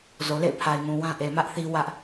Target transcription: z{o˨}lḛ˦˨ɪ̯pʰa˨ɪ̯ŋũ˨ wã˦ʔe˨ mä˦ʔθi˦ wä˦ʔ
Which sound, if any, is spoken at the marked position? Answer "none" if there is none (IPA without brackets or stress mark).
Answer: o˨